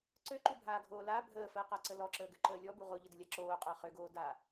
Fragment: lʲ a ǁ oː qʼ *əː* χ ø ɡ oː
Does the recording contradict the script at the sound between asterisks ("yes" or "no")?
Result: no